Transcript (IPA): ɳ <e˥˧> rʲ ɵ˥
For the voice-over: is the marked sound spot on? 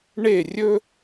yes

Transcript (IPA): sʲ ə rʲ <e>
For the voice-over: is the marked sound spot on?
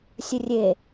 yes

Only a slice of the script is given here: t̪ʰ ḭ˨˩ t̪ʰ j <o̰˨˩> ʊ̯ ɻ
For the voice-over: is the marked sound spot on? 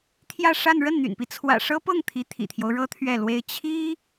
no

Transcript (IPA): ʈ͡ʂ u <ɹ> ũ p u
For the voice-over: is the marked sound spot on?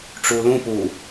no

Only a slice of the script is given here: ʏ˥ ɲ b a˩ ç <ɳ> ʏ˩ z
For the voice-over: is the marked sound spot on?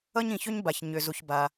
no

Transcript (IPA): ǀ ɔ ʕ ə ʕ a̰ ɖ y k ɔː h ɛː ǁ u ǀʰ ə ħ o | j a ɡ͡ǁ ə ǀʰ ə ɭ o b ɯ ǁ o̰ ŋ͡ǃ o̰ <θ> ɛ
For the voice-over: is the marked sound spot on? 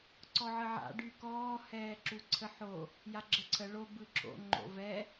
no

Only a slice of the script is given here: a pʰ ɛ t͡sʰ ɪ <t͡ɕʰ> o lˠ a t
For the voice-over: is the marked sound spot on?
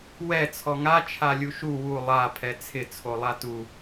no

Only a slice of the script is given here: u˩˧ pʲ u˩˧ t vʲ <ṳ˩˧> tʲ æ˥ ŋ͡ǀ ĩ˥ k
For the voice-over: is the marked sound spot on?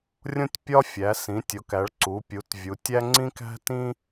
no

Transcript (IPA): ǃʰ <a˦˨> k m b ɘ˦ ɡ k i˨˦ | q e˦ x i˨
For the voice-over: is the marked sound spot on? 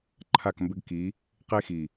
yes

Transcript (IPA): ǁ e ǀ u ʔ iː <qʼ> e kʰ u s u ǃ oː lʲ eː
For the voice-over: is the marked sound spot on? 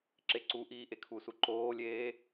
no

